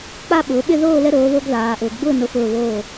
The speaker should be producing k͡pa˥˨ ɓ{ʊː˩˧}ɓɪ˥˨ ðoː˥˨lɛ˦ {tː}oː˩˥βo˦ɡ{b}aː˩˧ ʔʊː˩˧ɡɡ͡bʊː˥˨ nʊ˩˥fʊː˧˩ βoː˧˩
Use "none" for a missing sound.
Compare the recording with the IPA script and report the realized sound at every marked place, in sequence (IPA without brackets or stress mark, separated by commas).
ʊː˩˧, ɾ, ð